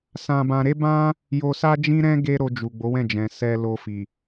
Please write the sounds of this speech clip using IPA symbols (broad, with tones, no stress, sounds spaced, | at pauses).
s ã˧ b ã˧ ɾ e˦ b ã˦ | j o˧ s a˦ d͡ʒ ĩ˦ ɾ ɛ̃˦ ɡ e˦ ɾ o˧ d͡ʒ u˨ ɡ͡b o˨˦ w ɛ̃˦˨ d͡ʒ ɛ̃˨ s ɛ˧ l o˧ f i˨